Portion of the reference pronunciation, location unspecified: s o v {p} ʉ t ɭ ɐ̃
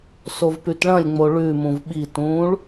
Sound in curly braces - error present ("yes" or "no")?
no